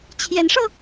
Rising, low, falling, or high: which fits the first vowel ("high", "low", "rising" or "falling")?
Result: rising